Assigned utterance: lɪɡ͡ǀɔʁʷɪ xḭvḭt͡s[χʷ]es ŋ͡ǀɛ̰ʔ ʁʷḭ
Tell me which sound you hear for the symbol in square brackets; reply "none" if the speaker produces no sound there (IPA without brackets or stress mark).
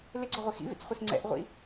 χʷ